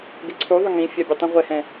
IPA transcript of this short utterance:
ɡ ɪ ǀʰ u ðˤ ʊ ŋ ĩ fʲ a bʲ e tˤ ũ ʁʷ ɛ h ɛ̃

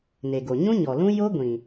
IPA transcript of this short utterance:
n e˨ ɡ o˨ ɲ ũ˦ ɲ ɔ˨ l ũ˦ j o˦ ɡʷ ĩ˨

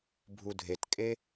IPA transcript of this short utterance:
bʱ u dʱ e t kʼ e

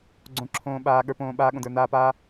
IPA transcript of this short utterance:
ɡ͡ǀ õ˨ ǁʰ õː˨ ɓ aː˨ ɠ ə˞˨ p õː˨ ɓ aː˧ ɠ õ˨ d ə˞˨ n aː˧ p aː˦

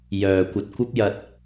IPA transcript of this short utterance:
j œː˧ kʷ ɐ˧ t̚ kʷ ɐ˥ p̚ j ɐ˧ t̚

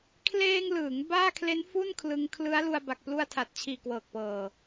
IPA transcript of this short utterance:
kʰ l eː˧ ŋ l ɯː˩˦ ŋ b aː˥˩ kʰ l e˦˥ n f u˥˩ n kʰ l ɯ˧ ŋ kʰ l ɯ˦˥ a̯ l u˧ a̯ b a˨˩ k̚ p l u˧ a̯ tʰ a˨˩ t̚ t͡ɕʰ iː˨˩ k w ɤː˨˩ k̚ p ɤː˨˩

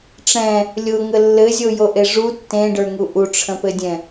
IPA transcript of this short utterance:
ʈ͡ʂ ɛ̃ | lʲ ʊ ŋ ə lː ɘ zʲ o j o ʔ e ʐ u tː ẽ ɖ ə˞ ŋ u ʔ u ʈ͡ʂʰ ə̃ p ɘ dʲ ɛ̃

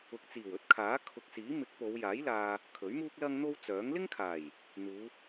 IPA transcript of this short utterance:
ʊ˨ k̚ t͡s iː˨˩ w ɵ˨˥ t̚ kʰ aː˨˥ kʰ ʊ˨ k̚ s iː˨˥ m ɪ˨˥ k̚ p o˨˧ w j aː˨˥ j l aː˧ | kʰ ɵ˨˥ ɥ m uː˥ k̚ l ɐ˥ ŋ n̪ o˥ w t͡s œː˨˥ ŋ l ɪ˥ ŋ kʰ aː˨˩ j | n̪ uː˨˧

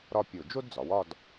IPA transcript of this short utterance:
ɾ ɒ˥˧ pʲ o˧˩ d͡ʒ o˥ d d͡z ɒ˩˧ w ɒ˥˧ d

